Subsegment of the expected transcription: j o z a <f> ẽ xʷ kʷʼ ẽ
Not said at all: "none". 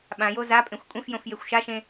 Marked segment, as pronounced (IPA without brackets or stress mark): pʼ